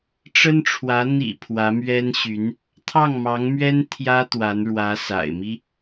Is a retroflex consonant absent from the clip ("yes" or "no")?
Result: no